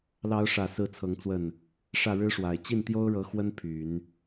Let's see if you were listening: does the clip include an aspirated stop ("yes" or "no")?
yes